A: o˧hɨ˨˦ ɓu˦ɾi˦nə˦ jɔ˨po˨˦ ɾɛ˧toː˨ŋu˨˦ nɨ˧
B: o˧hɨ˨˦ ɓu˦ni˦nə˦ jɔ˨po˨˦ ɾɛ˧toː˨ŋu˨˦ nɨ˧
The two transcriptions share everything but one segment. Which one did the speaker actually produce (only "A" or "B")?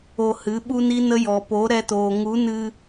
B